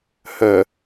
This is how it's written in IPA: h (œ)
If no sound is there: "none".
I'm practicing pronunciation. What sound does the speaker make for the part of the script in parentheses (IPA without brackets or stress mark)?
œ